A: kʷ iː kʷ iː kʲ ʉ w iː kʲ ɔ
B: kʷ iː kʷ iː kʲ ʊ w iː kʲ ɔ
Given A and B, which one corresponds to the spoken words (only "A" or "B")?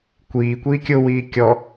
B